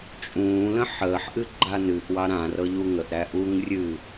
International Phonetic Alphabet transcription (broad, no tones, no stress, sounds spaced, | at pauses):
t͡ʃʼ ũː l ə̃ ħ əː ħ ʔ ɨ ɡ͡ǃ a n ɨ ʔ w ɑ ɾ ã r ɤ ʎ u ŋ ə ʔ ɾ æ ʔ u ŋ rʲ ɨ